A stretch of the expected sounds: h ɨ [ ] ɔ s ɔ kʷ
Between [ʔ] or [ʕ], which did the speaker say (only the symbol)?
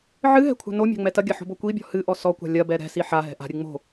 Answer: ʔ